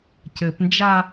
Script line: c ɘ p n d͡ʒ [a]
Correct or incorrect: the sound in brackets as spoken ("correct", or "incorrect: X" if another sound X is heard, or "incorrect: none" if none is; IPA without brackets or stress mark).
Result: correct